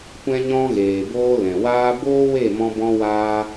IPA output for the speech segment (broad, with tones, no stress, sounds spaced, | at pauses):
kʷ ɛ̃˦ ɲ ɔ̃˦ ɣ eː˨ b oː˧ l ɛ̃˨ w aː˦ b oː˦ w e˦˨ m ɔ̃˧ b ɔ̃˦ w aː˦